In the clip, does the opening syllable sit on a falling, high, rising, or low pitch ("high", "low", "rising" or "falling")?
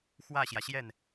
falling